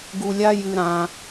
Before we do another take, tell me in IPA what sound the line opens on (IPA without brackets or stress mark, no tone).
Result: ɡ